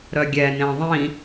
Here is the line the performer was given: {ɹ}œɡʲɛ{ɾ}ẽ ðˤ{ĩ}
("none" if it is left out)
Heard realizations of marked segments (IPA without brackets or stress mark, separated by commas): ɾ, n, ĩ